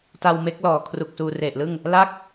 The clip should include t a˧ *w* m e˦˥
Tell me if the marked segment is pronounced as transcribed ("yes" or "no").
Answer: yes